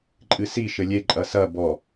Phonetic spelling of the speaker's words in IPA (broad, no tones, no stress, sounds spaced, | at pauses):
ǃʼ ɨ s i ʃ ɘ lʲ e ǃʼ ɐ s ɐ b ɔ